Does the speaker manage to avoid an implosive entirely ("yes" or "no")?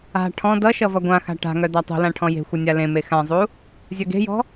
yes